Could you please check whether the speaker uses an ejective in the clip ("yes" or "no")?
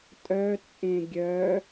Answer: yes